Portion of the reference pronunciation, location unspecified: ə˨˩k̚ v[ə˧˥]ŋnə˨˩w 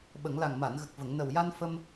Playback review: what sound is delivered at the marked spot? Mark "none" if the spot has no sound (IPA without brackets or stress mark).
ə˨˩˨